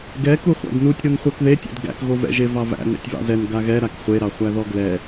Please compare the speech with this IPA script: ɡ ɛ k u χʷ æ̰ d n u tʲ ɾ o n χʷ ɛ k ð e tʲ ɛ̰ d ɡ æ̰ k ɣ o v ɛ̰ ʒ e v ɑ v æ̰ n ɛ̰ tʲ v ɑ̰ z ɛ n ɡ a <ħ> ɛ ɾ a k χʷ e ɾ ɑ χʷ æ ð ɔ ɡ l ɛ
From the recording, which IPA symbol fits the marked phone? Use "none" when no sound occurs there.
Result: ɣ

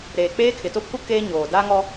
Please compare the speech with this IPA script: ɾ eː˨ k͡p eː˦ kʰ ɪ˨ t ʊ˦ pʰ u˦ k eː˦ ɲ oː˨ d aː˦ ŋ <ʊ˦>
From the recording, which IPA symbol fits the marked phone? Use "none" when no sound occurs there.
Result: ɔ˦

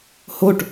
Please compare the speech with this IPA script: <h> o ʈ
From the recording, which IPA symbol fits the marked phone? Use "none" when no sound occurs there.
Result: h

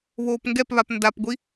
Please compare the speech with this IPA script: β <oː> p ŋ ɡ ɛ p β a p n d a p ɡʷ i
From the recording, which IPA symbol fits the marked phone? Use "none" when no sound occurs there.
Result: oː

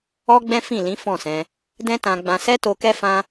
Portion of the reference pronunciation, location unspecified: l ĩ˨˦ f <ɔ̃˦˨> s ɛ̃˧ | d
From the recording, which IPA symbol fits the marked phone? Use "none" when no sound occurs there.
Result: ɔ̃˦˨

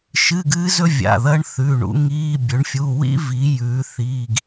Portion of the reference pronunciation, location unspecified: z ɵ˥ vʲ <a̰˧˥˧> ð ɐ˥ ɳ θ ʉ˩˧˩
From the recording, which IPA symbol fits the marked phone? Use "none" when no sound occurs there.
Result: a̰˩˧˩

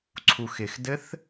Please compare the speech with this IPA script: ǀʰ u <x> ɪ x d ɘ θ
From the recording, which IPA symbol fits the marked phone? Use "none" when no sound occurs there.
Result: x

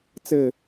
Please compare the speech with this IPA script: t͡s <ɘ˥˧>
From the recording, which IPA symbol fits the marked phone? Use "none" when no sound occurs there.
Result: ɘ˥˧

